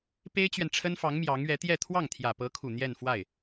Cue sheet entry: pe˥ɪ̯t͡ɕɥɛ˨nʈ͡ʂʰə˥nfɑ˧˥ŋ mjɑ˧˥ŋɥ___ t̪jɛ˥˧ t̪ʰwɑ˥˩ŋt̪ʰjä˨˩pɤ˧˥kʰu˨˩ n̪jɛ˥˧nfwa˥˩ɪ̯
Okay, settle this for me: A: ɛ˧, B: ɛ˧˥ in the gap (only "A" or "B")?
B